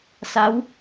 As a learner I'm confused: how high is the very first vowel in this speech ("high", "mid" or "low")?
low